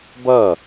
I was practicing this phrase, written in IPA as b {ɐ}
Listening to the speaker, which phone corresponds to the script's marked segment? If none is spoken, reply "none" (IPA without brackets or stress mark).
ɐ